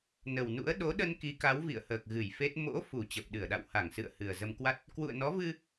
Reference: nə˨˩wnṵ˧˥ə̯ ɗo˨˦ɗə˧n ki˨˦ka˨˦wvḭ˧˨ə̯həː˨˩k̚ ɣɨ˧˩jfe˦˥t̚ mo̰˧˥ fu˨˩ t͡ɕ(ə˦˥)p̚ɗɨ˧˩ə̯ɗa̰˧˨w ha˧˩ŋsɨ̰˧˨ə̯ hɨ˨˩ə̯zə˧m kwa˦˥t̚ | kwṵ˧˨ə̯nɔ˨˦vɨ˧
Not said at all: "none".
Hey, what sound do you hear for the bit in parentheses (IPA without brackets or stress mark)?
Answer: ə˨˩